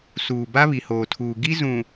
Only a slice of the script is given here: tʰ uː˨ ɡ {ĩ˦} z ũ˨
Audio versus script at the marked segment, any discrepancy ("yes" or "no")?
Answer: yes